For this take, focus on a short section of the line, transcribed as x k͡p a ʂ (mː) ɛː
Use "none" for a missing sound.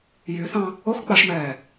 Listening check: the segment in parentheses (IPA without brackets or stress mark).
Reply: m